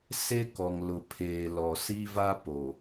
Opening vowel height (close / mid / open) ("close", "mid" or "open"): mid